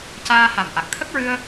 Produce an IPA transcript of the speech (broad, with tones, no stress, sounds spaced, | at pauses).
c aː˧ h a˨˩ m ʔ a˨˩ k̚ t̪ʰ ə˦˥ k̚ ɹ ɨ˧ ə̯